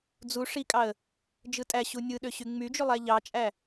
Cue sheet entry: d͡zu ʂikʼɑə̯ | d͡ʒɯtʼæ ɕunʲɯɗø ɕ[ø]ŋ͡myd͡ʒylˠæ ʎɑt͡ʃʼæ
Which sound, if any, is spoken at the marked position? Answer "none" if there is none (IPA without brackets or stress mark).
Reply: y